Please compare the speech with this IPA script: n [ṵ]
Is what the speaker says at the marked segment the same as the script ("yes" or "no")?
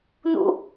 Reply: yes